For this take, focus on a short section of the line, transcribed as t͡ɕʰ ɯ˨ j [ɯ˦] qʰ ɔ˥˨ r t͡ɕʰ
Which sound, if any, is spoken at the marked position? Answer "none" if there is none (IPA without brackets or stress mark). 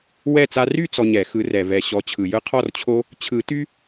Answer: ɯ˦